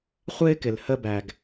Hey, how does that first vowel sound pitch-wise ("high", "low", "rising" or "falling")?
high